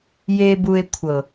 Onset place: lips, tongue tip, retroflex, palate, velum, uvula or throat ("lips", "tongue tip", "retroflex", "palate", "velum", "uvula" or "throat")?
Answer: palate